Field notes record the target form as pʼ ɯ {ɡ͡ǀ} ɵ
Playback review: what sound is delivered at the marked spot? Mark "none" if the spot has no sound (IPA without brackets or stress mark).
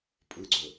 ɡ͡ǀ